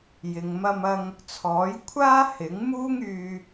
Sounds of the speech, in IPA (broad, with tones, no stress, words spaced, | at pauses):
jɪ˨ŋmɐ˧mɐ˧ŋ | t͡sʰɔː˨˥jkʷʰaː˥ hɪ˨˥ŋ muː˥ŋyː˧